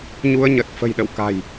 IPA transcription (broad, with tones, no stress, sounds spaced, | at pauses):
ɲ u˧ ə̯ ɲ ə˨˩ t̚ f ə̤˨˩ j ɗ ə̰˧˨ w k a̤˨˩ j